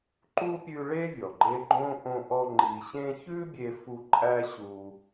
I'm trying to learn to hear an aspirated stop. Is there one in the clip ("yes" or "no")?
no